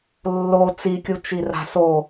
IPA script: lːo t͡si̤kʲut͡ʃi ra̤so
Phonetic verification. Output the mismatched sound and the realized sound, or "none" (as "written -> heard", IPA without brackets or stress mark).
i̤ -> i